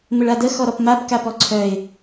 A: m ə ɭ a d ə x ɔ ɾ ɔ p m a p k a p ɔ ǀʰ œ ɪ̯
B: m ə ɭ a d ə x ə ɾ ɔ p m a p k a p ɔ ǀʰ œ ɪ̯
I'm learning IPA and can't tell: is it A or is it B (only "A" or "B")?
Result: A